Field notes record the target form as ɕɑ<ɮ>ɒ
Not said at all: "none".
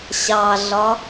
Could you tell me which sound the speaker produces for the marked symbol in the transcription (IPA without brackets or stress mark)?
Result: ɮ